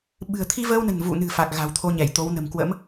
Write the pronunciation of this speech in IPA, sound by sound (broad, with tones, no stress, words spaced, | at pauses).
ɓɨ̤˨˩ə̯t̪ʰi˧vəː˧wnə̤˨˩n vṵ˧˨nɨ̤˨˩ fa˨˩k̚ɣa̤˨˩wt̪ʰo˧ ɲɛ˧˩jt̪o˨˦wnə̤˨˩m kwə̰˧˥m